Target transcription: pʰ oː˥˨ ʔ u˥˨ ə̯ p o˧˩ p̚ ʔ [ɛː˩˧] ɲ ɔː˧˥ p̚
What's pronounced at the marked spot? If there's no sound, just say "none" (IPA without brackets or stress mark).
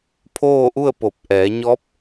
ɛː˩˧